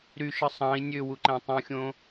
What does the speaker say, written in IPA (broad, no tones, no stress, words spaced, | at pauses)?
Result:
ɾyʃɯ sˤɑ̃i̯ nʲøwuǃæ̃ tˤũxʲõ